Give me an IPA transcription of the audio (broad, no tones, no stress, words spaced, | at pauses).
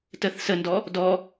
təθ səndɔ | dɔ